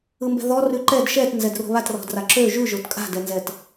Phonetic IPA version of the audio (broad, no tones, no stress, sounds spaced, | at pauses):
ɯ m b ɛ̤ ð ɔ r ʉ ǃ ɛ d ʃ ɛ t n z ɛ d r o̤ β a t r ɔ̤ d r a ǁ ø ʒ ʉ ʒ o t kʼ a̤ d ɛ n z ɛ t